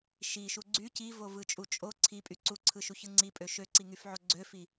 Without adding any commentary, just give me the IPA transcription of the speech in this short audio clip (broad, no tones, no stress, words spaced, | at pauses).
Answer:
ʃiʃu ɡ͡ǀy civovɯt͡ʃʼu t͡ʃʼo ǀʰipʼy ǀuǀʰɯʃuçɯ ŋ͡ǀipʼø ʃøǀiŋyfʕo ɡ͡ǀøfi